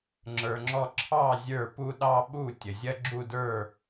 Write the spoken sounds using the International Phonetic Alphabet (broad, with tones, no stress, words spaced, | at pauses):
ŋ͡ǁə˞˧ŋ͡ǁɔ˥˧ ǁʰɑ˥˩ zʲə˞˥˩pu˥˧ ɗɑ˥˧ɓu˥˩ tʲə˩zʲɐ˥˧ɡ͡ǁu˥˩də˞˥˩